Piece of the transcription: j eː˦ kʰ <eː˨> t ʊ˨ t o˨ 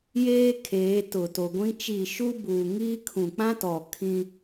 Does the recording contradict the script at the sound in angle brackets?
yes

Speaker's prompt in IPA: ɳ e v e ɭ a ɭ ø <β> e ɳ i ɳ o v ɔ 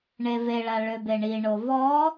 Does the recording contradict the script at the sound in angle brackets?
yes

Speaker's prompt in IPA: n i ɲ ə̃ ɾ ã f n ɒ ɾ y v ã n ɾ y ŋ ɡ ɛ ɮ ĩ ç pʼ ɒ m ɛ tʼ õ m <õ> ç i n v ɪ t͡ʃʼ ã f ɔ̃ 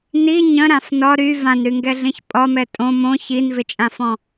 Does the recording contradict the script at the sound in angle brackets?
no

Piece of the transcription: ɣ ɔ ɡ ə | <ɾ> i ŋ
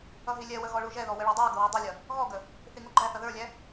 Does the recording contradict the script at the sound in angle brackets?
yes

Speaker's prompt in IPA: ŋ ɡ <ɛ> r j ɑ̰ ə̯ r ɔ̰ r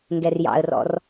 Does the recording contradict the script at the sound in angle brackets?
no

